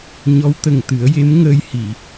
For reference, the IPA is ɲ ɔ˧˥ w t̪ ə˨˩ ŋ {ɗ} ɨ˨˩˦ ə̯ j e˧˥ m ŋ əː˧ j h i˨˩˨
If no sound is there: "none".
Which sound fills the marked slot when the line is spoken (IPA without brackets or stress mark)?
t̪